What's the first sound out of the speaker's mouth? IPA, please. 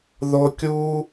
ð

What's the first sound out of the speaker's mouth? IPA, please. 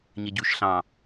ɲ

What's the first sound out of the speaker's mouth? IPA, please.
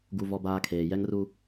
ɡ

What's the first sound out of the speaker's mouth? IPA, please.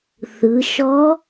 θ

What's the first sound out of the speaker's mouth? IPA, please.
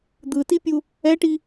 d̪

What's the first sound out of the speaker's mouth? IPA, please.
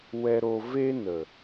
w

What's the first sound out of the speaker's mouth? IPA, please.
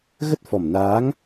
ɣ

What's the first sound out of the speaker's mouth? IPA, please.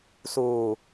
s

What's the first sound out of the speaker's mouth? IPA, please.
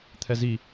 t̪ʰ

